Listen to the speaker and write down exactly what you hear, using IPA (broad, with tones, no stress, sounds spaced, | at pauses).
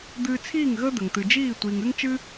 d̪ ɨː˧ t͡sʰ iː˦˨ ŋ ɣ əː˦ d̪ ə˨ ŋ t̪ ɨ˨ d͡ʒ iː˦˨ tʷ iː˨ ŋ ɨ˦ ŋ t͡ʃ ɨ˦